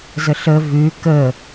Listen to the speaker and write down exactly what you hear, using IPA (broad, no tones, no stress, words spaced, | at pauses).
zəɬə vʉ kə